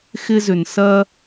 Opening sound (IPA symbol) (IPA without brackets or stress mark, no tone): x